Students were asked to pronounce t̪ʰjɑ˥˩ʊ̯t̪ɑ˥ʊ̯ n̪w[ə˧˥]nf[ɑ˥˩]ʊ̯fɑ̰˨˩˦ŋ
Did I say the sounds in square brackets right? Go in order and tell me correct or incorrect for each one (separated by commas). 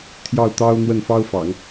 incorrect, incorrect